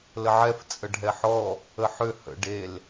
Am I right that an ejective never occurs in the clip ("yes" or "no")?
no